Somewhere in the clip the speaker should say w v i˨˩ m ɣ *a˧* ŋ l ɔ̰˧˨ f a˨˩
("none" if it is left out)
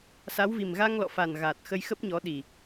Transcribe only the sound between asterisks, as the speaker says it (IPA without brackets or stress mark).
a˧